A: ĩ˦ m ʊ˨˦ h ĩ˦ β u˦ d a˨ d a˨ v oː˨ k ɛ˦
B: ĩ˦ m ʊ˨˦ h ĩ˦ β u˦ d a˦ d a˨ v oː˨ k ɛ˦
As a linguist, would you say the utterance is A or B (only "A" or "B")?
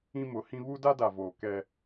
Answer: B